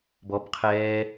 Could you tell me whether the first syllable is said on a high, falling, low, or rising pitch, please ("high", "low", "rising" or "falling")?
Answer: rising